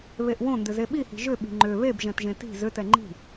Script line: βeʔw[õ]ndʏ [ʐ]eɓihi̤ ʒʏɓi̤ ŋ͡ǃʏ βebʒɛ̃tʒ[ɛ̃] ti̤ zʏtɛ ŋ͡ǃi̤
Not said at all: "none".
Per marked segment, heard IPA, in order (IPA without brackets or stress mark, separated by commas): õ, z, ẽ